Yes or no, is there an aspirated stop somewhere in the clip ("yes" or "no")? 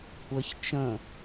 no